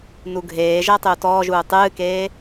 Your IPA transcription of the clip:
n u ɡʱ eː ʒ ɜ tˤ ʏ u̯ t ɔː ʒ uː tˤ ɨː k eː

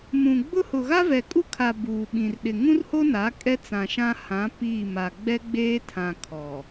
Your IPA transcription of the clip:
m ũ˨ ɡ͡b ʊ˦ h ʊ˨ ɣ a˦ v ɛ˨ kʼ u˦ kʰ a˨ b uː˨ ɓ ĩ˨ r ɗ ɪ˨ ŋ ũ˦ r h o˦ n a˨˦ kʼ ɛ˦ t͡s ã˨ ʃ ã˦ h ã˨˦ p iː˦˨ m a˨ ɡ͡b ɛ˦ ɡ͡b eː˦ tʰ ã˨ kʰ ɔ˨

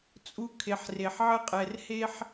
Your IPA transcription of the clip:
t͡sʼ u˦ kʰ e˨ ħ r e˨ ħ ʕ ɘ˦ qʼ ɛ˨ r h e˦ ħ

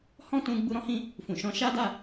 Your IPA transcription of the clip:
h ɔ̃˦ t ũ˧ ɡ͡b u˧ ɾ ɔ̃˧ h ĩ˧ | f ũ˨ ʃ ɔ̃˧ ʃ a˦ d a˦˨

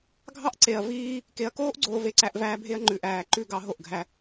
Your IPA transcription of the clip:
ɡʱ ɑ˦ ʔ ǀ e˨ ɐ̯ v iː˦ | k e˨ ɐ̯ k oː˦ ʔ ɡ͡ǀ oː˨ v e˦ ǀ æ˦ ʔ v æː˦ bʱ e˦ ɐ̯ ŋ͡ǃ ʉ˨ ʔ æː˨ ǃ ʉ˦˨ ɡ ɑ˦ ɦ o˦˨ ʔ ɡʱ æ˦

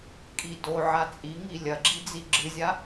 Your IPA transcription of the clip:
kʼ i d o ʕ a t͡sʼ i ŋ i lʲ ɐ ɡ͡ǁ i d͡z i ɡ͡ǁ ɨ zʲ a

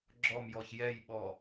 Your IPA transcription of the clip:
ɡ͡ǁ ɔ m j ɔ ç j ɛ j ɓ ɔ

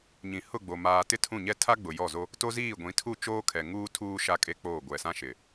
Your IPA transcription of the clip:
ɲ ĩ˨ h ʊ˦˨ ɡ͡b o˨ m aː˨ t ɪ˦ tʰ ũ˦˨ ɲ ɛ˦ tʰ a˦ ɡ͡b ʊ˨ j ɔ˦˨ z o˦ | t o˦ z iː˦˨ ɡʷ ĩ˨˦ tʰ u˦˨ t͡ʃ oː˦ kʰ ɛ˨ ŋ uː˦ tʰ uː˦ ʃ a˦ kʼ e˦ k͡p oː˦˨ ɡʷ ɛ˨ s ã˦ ʃ ɪ˨

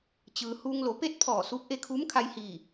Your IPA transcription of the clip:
t͡ɕ ɯː˩ h uː˧ ŋ l o˩˧ p e˥˨ t̚ pʰ ɔː˧˩ s uː˧˥ k̚ ʔ e˧ kʰ uː˧˥ m kʰ a˧ j h i˧˩

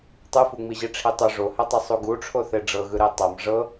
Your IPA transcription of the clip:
tˤ ɯ f u ŋ͡m i ʑ i ʈ͡ʂʰ i tˤ o ʐ o h ɛ tˤ e sˤ u ɡ u ʈ͡ʂʰ o θ e ɖ͡ʐ ɤ ɣ ɯ ɾ e tˤ a m ʐ ɤ

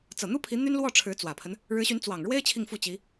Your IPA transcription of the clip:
t͡s ɤ˨˩ n̪ u˥ pʰ i˧˥ n̪ y˥ n l w ɔ˥˩ ʈ͡ʂʰ ɻ̩˧˥ t͡s w ä˨˩ pʰ ə˦ n | ɻ ɻ̩˧˥ ɕ y˧˥ n t͡s w ɑ˨˩ ŋ ɻ w e˥ ɪ̯ t͡ɕʰ i˥˧ ŋ f u˥˩ t͡ɕ i˧˥

